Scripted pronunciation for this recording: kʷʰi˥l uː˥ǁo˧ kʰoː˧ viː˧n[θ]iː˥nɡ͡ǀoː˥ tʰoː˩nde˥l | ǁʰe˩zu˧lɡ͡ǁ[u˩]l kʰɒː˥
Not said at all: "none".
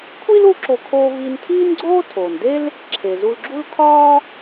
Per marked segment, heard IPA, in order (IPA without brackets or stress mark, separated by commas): tʰ, u˥